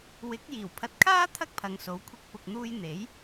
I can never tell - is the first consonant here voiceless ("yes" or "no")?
no